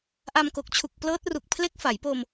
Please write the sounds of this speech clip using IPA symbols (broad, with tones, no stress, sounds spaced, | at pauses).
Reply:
ʔ a˧ m k o˨˩ k̚ t͡ɕʰ u˨˩ k̚ p l ɤː˦˥ t̚ r u˨˩ k̚ pʰ l e˦˥ k̚ f a˩˦ j p oː˧ m